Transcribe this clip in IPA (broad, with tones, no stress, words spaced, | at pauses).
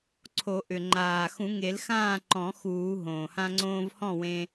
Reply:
ǀʰo˨˩˦ʔʏ˩ ŋ͡ǃaː˩xũ˨˩˦ŋe˨˩˦lxãː˥˨ ǃɔ̃˨˩˦ xuː˨˩˦ ɦõː˩hã˧ŋ͡ǀõː˧v hɔ̃˥˨wẽ˧